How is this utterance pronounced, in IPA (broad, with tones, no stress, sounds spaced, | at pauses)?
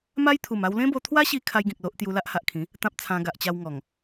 m a˦ j t̪ʰ u˨˩ m a˧ w l ẽ˦ b o˧ t̪ʰ w a˦ ɕ i˧ kʰ a˦ j ɡ ĩ˨ k̚ l o˦ ʔ t̪ j u˧ l a˦ ʔ h a˨ ʔ kʰ ĩ˨˦ | t̪ ã˦ p̚ t͡sʰ ã˧ ɡ a˨ ʔ t͡ɕ a˧ w ŋ ɔ˨˩ ŋ